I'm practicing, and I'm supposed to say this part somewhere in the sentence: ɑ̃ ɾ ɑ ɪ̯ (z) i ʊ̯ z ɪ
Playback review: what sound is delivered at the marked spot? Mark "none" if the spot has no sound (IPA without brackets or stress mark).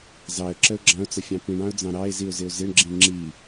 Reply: z